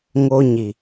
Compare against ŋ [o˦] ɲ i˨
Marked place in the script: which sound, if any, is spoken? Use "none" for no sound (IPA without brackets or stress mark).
o˦